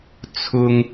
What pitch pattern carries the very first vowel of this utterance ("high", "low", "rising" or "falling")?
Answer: high